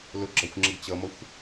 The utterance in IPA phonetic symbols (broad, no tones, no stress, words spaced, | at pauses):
lʊɡ͡ǁɒxʷŋ͡ǁəɡ t͡ɕʌmʌxʷ